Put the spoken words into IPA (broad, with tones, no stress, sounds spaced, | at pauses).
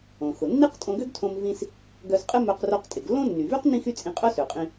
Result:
õ˩ x ʊ˩ nː i˥ q tʼ õ˧ ɡ ø˥ ɡ tʰ õ˧ m v ĩ˥ s | ɡ œ˧ s qʼ ɪ˥ m œ˧ q r o˧ q tʼ ɪ˩ ɡ lː õ˥ nː y˩ v y˥ q n ĩ˥ x y˥ t͡sʼ ĩ˧ qʼ œ˥ s ø˩ qʼ ĩ˧